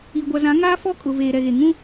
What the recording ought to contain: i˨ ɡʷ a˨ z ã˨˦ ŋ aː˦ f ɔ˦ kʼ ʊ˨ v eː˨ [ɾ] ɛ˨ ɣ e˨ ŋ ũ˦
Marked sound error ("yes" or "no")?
no